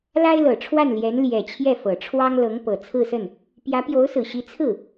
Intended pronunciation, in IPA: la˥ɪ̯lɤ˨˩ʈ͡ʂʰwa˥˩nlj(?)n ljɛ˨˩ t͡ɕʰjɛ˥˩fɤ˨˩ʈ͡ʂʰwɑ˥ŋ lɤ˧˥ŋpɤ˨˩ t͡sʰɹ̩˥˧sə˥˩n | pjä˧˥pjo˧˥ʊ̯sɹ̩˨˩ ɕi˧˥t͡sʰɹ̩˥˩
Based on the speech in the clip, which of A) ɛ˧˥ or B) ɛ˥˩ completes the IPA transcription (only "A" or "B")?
A